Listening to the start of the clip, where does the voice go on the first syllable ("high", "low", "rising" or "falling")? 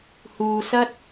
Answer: low